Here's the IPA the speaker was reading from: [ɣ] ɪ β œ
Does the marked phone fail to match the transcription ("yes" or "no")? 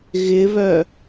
no